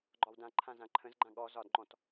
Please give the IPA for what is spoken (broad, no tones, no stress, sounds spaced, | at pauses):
ɡ͡ǃ ɒ w d ã ǃʰ ã z ã ǃʰ ə̃ z ɡ͡ǃ ã ɠ ɔ z ɒ d ŋ͡ǃ ɔ̃ t